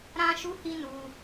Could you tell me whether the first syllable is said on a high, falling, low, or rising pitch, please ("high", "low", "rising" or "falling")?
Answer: high